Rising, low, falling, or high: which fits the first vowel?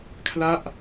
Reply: falling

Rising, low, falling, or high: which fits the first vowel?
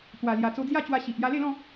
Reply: low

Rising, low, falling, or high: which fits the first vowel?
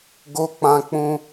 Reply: high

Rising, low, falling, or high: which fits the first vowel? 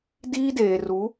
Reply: high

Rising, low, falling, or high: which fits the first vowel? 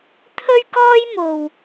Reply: high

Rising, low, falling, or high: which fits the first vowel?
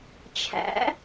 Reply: rising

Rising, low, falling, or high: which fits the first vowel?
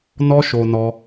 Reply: high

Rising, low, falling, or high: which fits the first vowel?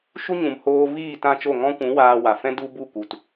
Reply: high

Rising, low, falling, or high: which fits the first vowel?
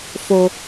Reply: low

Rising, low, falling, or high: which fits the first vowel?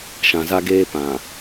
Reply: low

